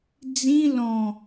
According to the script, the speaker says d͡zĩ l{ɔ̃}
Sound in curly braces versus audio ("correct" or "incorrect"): correct